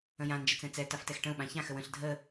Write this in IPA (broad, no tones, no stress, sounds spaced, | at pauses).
ə̃ j ã n d͡ʒ ə t͡s ɛ̃ t͡s ɛ t a f t ɛ x ʈ ə̃ u̯ ɓ ã ç ã x ə w ə̃ ɬ dʱ ə